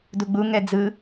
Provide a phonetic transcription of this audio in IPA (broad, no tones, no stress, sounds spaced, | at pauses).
d u ɡ͡b u ŋ ɛ d͡z ɯ